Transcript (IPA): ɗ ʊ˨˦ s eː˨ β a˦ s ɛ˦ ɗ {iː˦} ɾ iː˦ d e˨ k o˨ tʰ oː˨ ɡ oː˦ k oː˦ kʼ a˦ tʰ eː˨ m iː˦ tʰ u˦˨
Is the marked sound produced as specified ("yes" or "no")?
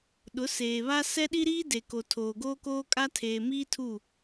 no